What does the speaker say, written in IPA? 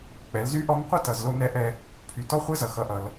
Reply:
k͡pɛ˩˧lzy˧˥ ʔɔ˧˥ŋqʷə˥tʌ˩z lo˧nɛ˧˥ʔɛ˧ | pʰy˩˧tɔ˧˥χʷɛ˧˥zʌ˩ xʌ˩˧ʔʌ˩l

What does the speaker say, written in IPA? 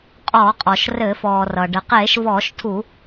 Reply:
qʼɔː˧˩˧qʼɔ˩ʃrɘː˧˩˧f ɔː˩rʌ˩ ɖɘ˩qeː˧˩˧ʃ vɔː˧˩˧ʃtʰu˧˩˧

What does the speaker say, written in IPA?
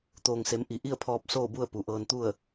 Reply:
t̪oː˩ŋse˩˧m ʔi˩ ʔi˥˨ə̯pʰɔː˧p̚ soː˥˨bu˥˨ə̯ pu˩ʔɤː˧nt̪u˥˨ə̯

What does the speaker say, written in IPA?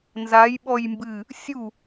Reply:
nzajɓɔj mbɨ | sʲu

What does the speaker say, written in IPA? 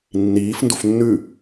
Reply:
nːiːf ndufnːʉ

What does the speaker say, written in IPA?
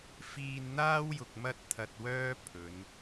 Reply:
fiː˧nn̪aː˥wjʊ˨k̚ mɐ˥t̚t̪ʰɐ˧t̚wœː˥ pʰɵ˨˧n

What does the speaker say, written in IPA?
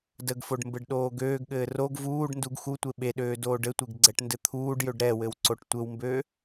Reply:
dəɡfoɖ mbɘɖɗoːɡøːɡɠɘː roɡ vuːɖ nduɡxutʷe ɓeɗøː doːɖɘtʷeɡ ɡ͡ǀɛʈndɘt̪ʰuːɖjøɖ ɾɛwɘw ǀoʈtʷɘwmbøː

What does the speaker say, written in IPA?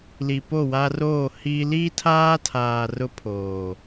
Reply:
li˨po˦˨wa˦roː˦˨ hi˦ liː˦tʰaː˦tʰaː˨ rʊ˦pʰoː˨

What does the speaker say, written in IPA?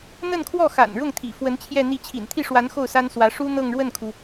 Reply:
n̪ə˥˧nkʰwɔ˥˩xa̰˨˩n ɻʊ˥˩ŋt̪ʰḭ˨˩fwə˧˥n t͡ɕʰjɛ˥˧n̪i˥˩ t͡ɕʰḭ˨˩nt̪ʰi˥˩ʂwa˧˥n xo˥˩ʊ̯sa˥n swä˧˥ ʂu˥ n̪ɤ˥˧ŋɻwə˥˩nkʰu˩

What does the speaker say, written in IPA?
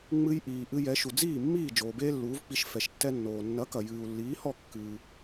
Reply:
ŋ͡mɨ˧j ʔiː˩ʔɨ˧ jɛ˩˥ʃu˩ d͡ziː˥˩mːiː˥˩ d͡ʒoː˩beː˥lːuː˩˥vk͡pi˧ʃ fɛ˩ʃtːɛ˧nːoː˩ nːɐ˩˥kɐ˩ jɨː˩u̯lːiː˩˥hɔ˥˩ kːɨː˩

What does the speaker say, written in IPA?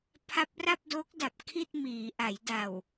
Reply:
pʰa˦˥p̚ra˥˩p̚do˦˥k̚da˨˩p̚ kʰi˥˩t̚miː˩˦ʔa˩˦j da˨˩w

